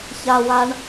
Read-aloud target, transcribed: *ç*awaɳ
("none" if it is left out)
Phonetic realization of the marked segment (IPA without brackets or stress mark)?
ç